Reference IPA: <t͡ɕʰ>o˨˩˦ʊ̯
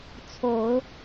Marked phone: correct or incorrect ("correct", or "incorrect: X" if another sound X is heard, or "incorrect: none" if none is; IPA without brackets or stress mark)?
incorrect: t͡sʰ